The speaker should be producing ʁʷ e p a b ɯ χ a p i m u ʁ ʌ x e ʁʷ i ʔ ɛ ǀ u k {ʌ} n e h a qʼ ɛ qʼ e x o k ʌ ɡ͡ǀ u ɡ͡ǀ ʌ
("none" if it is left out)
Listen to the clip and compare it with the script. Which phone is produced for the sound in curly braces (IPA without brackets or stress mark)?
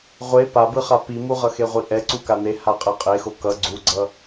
a